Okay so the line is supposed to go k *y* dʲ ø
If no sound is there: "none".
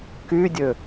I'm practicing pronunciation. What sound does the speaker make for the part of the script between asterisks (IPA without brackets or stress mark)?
y